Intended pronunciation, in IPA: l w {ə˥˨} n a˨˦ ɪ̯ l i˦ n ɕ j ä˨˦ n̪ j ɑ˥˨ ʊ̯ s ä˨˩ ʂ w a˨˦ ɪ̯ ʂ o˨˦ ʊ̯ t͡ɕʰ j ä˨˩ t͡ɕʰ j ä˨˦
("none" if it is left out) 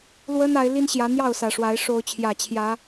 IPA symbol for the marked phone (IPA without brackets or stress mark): ə˦